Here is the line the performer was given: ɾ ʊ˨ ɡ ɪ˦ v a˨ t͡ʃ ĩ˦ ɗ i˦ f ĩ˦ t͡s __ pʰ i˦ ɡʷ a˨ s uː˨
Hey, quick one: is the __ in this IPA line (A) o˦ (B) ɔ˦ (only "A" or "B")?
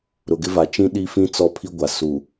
B